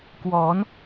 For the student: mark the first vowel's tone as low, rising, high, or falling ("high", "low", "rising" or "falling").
rising